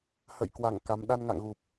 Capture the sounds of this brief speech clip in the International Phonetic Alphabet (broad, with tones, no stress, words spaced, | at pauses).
hə̰ː˧˨jkwa˧˩ŋ ka˨˦m ɗa˧nŋa̰˧˨ŋɣu˨˩p̚